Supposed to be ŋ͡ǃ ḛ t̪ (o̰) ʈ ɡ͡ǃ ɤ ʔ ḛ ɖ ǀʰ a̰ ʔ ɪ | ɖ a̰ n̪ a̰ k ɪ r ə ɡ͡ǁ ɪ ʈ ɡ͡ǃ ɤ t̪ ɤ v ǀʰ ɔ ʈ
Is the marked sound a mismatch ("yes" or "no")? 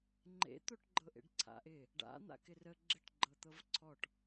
yes